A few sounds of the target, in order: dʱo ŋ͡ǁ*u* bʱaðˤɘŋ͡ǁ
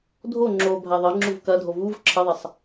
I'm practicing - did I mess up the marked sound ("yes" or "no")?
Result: yes